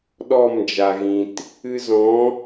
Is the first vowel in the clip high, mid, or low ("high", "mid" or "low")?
mid